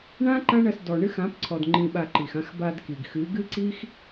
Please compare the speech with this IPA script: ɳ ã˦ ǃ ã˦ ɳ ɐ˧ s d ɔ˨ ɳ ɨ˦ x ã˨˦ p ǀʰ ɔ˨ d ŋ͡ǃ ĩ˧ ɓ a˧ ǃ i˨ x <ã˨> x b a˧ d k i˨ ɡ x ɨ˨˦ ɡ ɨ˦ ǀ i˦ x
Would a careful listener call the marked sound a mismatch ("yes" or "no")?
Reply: yes